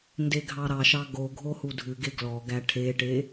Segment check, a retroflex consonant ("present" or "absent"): present